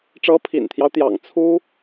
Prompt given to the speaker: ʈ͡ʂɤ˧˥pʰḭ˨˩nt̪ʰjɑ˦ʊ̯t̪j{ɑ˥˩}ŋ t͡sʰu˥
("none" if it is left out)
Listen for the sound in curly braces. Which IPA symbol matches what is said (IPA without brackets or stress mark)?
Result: ɑ̰˨˩